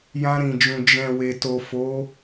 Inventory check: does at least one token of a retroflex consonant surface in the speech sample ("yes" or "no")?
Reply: no